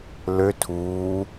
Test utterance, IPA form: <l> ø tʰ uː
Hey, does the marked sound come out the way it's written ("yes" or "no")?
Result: yes